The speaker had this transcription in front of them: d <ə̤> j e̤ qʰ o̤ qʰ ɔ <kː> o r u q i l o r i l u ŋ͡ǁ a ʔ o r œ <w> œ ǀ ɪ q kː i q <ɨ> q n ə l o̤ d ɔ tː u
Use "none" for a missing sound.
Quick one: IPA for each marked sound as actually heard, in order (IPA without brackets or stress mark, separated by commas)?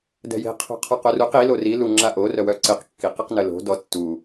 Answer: ɛ̤, q, w, i